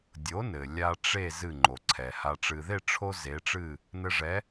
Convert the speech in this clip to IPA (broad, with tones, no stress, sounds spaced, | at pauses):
dʲ o˩˥ n ɘ˩ lʲ a˧ ʈ͡ʂ e˥˩ z ɨ˥˩ ŋ͡ǃ o˩ ǀʰ ɛ˩ h a˩ ʈ͡ʂ ɨ˩ ð e˥˩ ʈ͡ʂʰ o˥ z e˩˥ ʈ͡ʂ ɨ˥˩ | n ɘ˧ ʐ ɛ˩˥